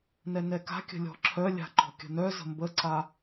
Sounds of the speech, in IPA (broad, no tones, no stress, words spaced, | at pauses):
nɛnɛka̤kʲə̤ lʲɔ̤ǁʰœlʲa̤ ǃɔ̤kʲə̤nœzə̤ mbəǀa